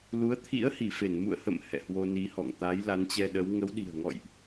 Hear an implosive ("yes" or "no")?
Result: yes